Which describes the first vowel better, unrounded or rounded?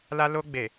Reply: unrounded